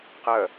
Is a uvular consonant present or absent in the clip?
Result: present